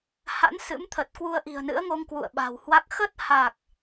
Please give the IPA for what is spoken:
h a̰˧˥ n s ɨ̰˧˥ m t̪ʰ ə˨˩ t̚ k w u˧ ə̯ ʔ i̤˨˩ ə̯ n ɨ̰˧˥ ə̯ ŋ o˧ ŋ k w ṵ˧˨ ə̯ ɓ a̤˨˩ w h w a˦˥ k̚ x ə˦˥ t̚ h a˨˩ k̚

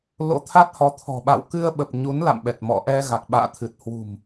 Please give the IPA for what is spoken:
l o̰˧˥ t̪ʰ a˦˥ t̚ h ɔ˨˦ t̪ʰ ɔ̤˨˩ ɓ a̰˧˨ w k ɨ˧ ə̯ ɓ ə˨˩ p̚ ɲ u˨˦ n l a̰˧˨ m ɓ ɛ˨˩ t̚ m ɔ̰˧˨ ʔ ɛ˧ ɣ a˨˩ k̚ ɓ a̰ː˧˨ t̪ʰ ɨ˨˩ t̚ h w ṳ˨˩ m

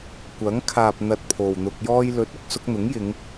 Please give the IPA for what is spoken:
kʷ ɐ˨˥ ŋ kʰ aː˨ p̚ n̪ ɐ˨ t̚ pʰ o˨ w n̪ ʊ˧ k̚ j ɔː˧ j l ɵ˨˥ t̚ ʊ˨ k̚ s ʊ˧ k̚ n̪ ʊ˨˥ ŋ j ɪ˨˧ ŋ

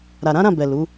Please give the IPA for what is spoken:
ɾ a˨ ɾ ã˨˦ ɾ ã˦˨ b ɛ˨ l u˨˦

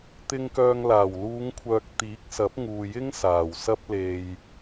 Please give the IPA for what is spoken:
t̪ ɪ˧ ŋ k œː˧ ŋ l aː˨˩ w l uː˨˧ ŋ kʷʰ œː˨ k̚ t̪ iː˨˥ k̚ s ɐ˨˥ p̚ ŋ uː˨ j ɪ˥ ŋ s aː˨˩ w s ɐ˧ p̚ l e˨ j

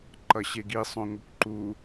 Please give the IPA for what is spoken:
ǃ ʌ ɕ e ɡ i sˤ õ ŋʷ ɯ kʷ ǃ u

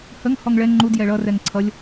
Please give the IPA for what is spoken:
h ə ŋ h ɔ ŋ ɭ ɛ ŋ͡ǃ u d j ɛ ɭ ʌ r ɛ ŋ ǀʰ ʌ lʲ

